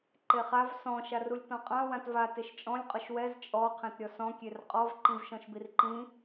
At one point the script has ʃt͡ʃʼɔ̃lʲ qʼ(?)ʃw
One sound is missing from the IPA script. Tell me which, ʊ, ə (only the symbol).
ʊ